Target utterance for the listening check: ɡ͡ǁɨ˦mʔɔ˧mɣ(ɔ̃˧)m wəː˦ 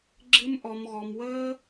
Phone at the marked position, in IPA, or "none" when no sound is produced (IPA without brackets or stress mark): ɔ˧